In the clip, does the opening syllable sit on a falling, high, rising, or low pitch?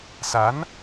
rising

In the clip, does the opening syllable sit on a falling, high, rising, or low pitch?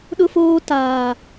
high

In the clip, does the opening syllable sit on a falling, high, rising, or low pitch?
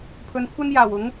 low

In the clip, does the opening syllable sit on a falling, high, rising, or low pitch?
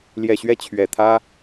low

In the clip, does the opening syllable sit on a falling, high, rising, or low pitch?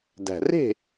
low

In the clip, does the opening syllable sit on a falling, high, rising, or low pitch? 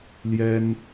high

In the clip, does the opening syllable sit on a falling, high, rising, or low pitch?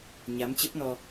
rising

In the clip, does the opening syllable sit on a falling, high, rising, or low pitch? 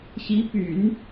rising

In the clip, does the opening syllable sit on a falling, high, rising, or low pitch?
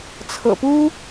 low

